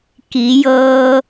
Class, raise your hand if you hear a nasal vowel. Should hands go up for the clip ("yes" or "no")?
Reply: no